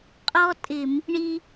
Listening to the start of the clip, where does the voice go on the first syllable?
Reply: high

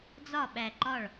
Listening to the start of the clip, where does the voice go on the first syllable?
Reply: falling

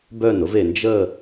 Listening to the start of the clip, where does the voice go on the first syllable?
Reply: falling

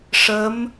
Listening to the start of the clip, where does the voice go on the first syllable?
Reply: rising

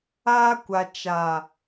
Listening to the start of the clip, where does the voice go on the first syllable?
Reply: high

